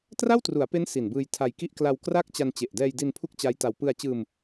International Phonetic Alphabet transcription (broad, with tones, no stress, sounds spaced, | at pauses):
t r a˥˩ w t r u˩˦ a̯ p e˦˥ n s i˨˩ n b ɯː˧ j tʰ a˧ j k i˥˩ ʔ k l a˧ w k r a˥˩ k̚ t͡ɕ a˧ n t͡ɕ e˨˩ ʔ d ɛː˧ j d i˧ n pʰ u˥˩ k̚ t͡ɕ a˦˥ j t a˧ w p ɯ˧ a̯ t͡ɕ ɯː˧ m